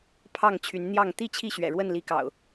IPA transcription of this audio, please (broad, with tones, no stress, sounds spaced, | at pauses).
pʰ ɑ˥˨ ŋ t͡ɕʰ y˨˦ n n̪ j ɑ˥˨ ŋ t̪ i˥˨ t͡ɕʰ i˥˨ ɕ ɥ ɛ̰˨˩ ɻ w ə˥˨ n l i˨˦ k ɑ̰˨˩ ʊ̯